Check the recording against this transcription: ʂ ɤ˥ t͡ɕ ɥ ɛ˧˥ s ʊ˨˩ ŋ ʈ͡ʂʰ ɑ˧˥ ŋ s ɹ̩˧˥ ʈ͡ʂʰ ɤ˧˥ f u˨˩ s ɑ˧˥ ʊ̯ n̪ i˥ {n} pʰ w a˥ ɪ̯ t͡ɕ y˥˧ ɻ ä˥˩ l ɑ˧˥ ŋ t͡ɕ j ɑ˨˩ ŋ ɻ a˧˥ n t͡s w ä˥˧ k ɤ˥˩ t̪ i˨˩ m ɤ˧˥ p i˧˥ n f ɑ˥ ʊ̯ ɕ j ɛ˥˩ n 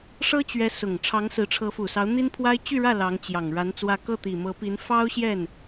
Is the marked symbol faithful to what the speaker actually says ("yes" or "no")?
yes